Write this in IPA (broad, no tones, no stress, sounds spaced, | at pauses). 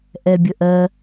ʔ ɛ bʲ ə ʔ ɜ